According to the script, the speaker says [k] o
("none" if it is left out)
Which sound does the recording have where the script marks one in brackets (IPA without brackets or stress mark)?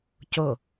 c